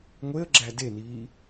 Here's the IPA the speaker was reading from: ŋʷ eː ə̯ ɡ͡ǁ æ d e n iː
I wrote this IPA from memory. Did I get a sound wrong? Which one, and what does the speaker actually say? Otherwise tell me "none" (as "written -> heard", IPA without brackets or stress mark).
eː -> e